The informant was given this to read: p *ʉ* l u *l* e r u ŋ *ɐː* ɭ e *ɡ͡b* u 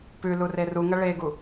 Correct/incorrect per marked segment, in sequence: correct, incorrect: r, incorrect: ɐ, incorrect: ɡ

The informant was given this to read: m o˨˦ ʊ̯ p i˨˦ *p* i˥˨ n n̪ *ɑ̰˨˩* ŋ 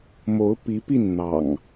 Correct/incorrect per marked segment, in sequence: correct, correct

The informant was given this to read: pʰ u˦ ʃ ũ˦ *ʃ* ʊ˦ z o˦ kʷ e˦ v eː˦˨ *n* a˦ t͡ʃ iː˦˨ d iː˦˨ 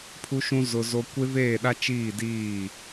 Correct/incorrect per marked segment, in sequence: incorrect: z, incorrect: ɗ

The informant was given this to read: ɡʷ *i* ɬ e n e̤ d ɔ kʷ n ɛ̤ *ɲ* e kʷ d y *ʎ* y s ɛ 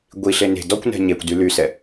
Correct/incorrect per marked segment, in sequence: correct, correct, incorrect: l

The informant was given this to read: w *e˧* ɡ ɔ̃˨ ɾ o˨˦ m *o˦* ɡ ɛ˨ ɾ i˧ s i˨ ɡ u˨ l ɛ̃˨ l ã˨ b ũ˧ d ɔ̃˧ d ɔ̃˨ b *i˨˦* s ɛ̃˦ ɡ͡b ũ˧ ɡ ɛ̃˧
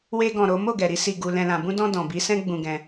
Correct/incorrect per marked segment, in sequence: correct, incorrect: o˦˨, correct

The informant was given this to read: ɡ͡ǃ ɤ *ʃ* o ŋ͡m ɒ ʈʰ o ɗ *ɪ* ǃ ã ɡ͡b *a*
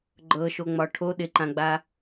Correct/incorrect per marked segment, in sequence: correct, correct, correct

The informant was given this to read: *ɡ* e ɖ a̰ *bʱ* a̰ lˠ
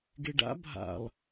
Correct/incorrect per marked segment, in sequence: correct, correct

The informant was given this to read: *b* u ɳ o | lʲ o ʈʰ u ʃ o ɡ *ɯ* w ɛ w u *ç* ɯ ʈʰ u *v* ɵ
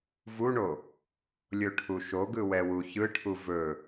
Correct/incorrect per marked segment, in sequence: incorrect: v, correct, correct, correct

